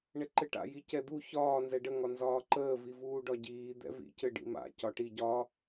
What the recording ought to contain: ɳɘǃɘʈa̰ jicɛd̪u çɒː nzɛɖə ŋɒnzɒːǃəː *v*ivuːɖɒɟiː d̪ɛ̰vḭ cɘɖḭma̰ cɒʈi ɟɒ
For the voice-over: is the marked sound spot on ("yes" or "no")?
yes